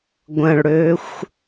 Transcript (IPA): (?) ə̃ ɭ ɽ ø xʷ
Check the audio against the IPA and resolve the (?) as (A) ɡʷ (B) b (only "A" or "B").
A